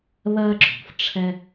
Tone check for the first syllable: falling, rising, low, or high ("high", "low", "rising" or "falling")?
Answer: high